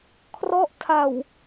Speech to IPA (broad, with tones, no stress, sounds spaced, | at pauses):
kʰ r ɔ˦˥ ʔ tʰ a˨˩ w